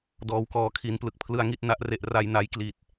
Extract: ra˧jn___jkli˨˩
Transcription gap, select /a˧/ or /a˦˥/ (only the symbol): a˧